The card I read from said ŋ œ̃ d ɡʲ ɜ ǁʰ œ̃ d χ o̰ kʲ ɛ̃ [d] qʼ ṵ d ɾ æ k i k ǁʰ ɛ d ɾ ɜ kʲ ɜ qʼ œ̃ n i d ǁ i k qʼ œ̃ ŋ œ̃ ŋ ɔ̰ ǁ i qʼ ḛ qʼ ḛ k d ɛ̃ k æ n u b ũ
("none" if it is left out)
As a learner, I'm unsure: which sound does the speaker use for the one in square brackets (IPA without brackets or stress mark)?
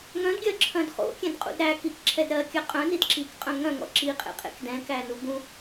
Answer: d